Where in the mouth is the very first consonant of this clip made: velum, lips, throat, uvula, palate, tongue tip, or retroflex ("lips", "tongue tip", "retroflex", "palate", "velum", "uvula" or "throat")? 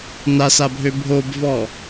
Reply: tongue tip